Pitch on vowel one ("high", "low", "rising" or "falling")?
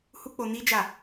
high